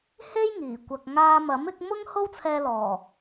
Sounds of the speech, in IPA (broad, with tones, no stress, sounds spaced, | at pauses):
h e˥ j ŋ iː˨˩ kʷ ɐ˨ k̚ ŋ aː˧ m ɐ˨˥ m ɪ˨˥ k̚ m ʊ˥ ŋ h o˥ w t͡sʰ ɛː˧ l ɔː˨˩